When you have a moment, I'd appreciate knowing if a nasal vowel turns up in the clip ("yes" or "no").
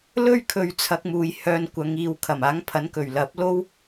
no